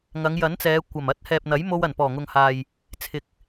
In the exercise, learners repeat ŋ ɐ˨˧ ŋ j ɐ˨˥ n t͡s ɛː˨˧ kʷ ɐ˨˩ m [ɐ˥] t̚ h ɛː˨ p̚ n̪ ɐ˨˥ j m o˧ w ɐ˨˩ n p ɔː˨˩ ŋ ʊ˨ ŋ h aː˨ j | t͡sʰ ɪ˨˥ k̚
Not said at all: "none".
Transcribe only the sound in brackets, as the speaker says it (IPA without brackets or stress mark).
ɐ˥